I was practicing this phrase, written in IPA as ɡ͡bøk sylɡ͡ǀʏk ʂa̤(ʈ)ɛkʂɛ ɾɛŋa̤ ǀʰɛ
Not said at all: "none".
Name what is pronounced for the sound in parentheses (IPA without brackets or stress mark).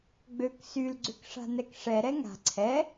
n